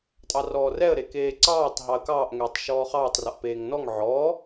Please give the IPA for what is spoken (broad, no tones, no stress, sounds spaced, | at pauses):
tʼ ɑ r ɔː r ɛ ə̯ ɾ e k eː ǀ ɑː tˤ ɦ ɑ ə̯ k ɑː ʔ ŋ ɛː tˤ ʃ ɔː χ ɑː tˤ r ɔ ʔ p eː ŋ n ɔ ŋ ʕ ɔ